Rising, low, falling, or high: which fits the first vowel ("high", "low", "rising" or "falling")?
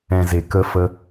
low